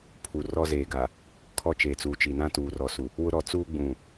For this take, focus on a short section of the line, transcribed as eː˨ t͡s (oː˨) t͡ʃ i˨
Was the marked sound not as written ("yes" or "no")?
yes